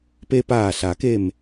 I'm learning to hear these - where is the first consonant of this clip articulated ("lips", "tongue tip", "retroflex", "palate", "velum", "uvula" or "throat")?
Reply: lips